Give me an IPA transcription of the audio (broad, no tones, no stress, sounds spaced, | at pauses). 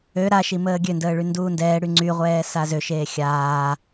ø ɾ a ʃ i m əː ɡʲ ø n d əː ɭ y n d uː n d ɛː ɽ y ŋ͡ǀ y ʁʷ ɛː s a z ø ʃ eː xʲ aː